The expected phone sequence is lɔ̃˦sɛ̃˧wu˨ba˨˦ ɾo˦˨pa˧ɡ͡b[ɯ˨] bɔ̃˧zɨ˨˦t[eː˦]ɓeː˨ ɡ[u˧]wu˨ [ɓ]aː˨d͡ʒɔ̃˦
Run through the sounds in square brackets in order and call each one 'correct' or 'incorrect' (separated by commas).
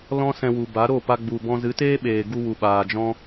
incorrect, correct, correct, correct